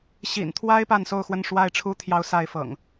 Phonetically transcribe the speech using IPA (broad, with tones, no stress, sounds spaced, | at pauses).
ɕ ḭ˨˩ n t̪ʰ w a˦ ɪ̯ p a˥˨ n s o˥˨ ʊ̯ x w ə˥˨ n ʂ w a˥˨ ɪ̯ ʈ͡ʂʰ u˦ t̪ʰ j ɑ˦ ʊ̯ s a˥˨ ɪ̯ f ɤ̰˨˩ ŋ